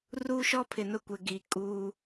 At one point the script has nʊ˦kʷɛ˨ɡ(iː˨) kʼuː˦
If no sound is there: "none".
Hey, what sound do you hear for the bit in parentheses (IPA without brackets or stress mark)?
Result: iː˨